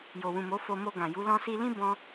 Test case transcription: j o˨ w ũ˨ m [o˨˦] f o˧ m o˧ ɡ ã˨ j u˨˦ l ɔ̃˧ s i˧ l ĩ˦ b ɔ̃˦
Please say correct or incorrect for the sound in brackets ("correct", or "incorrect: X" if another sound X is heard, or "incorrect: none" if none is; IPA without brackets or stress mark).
correct